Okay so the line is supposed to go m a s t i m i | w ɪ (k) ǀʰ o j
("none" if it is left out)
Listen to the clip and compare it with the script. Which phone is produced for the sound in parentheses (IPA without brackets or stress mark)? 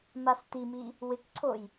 k